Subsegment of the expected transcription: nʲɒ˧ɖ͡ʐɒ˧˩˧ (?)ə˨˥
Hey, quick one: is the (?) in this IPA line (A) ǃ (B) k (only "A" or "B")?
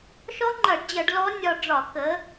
B